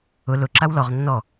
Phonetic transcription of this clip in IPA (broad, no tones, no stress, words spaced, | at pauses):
ʊ lʊ ǁawlɔʁ nːɔ